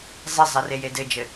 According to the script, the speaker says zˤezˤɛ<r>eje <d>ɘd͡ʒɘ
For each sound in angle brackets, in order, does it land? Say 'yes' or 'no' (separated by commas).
yes, yes